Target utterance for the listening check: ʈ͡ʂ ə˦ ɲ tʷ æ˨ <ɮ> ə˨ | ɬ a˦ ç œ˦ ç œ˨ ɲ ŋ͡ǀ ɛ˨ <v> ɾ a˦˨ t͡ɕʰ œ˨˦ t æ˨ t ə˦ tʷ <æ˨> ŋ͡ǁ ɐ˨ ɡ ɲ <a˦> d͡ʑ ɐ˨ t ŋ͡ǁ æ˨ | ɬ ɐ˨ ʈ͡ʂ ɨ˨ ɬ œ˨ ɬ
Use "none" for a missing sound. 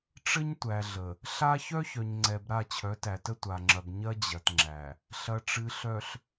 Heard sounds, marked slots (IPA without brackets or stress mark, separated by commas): ɮ, b, a˨, ɐ˦